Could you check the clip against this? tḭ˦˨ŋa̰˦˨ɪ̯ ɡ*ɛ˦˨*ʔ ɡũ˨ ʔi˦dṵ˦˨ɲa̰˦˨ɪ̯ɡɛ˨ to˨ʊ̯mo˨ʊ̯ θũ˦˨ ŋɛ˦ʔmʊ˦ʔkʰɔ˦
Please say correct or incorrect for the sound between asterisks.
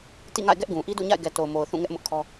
incorrect